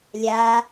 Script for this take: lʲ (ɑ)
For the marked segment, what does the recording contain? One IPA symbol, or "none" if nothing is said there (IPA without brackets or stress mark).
a